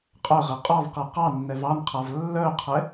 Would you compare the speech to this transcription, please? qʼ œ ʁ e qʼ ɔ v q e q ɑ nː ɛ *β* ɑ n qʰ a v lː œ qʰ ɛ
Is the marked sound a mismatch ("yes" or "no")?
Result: yes